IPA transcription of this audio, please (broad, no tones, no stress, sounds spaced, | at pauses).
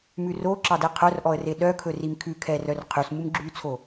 m ʉ r o ǁ ɑ d ɛ qʰ œ r ʔ ɔ ə̯ r e ɗ œ kʰ ɵ r i m kʰ ʉ kʰ ɛ r œ r qʰ y s m u m ɡ͡ǁ y t͡sʰ o